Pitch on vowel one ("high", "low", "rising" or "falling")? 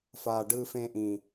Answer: low